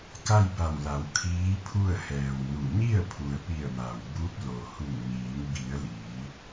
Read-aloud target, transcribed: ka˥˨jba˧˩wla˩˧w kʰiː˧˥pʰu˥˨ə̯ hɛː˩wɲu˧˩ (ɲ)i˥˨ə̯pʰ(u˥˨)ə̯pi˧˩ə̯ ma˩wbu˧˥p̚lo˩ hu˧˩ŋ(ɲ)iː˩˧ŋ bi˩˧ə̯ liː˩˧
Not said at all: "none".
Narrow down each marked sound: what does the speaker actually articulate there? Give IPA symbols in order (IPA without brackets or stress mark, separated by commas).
ɲ, u˩, ɲ